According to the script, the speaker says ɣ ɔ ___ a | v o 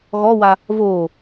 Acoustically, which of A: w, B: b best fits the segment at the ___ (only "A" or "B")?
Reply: A